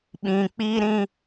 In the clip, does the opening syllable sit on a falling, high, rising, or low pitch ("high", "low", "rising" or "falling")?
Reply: low